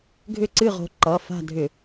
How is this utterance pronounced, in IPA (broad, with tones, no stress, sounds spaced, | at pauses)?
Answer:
ɡʱ ʏ˦˨ ǀ ɨ˦˨ ʁ o̤˨˦ ǃ ʌ˩˧˩ f a̤˦˨ dʱ ʏ˧˩˧